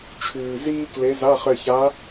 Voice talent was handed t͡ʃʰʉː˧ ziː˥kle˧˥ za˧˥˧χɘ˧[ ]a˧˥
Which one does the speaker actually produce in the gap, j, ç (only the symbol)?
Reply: ç